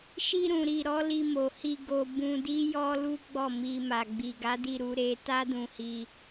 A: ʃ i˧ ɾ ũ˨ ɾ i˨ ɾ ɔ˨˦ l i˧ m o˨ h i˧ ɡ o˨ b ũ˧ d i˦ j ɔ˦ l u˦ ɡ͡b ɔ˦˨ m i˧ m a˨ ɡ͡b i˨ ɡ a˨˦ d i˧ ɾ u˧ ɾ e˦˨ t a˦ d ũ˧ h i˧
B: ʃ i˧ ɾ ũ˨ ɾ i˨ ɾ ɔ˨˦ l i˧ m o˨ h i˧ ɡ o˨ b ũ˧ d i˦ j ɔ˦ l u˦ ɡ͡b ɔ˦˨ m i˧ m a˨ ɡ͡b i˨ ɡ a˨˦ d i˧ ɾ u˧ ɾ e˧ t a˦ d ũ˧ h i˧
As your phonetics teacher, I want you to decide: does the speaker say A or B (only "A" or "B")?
B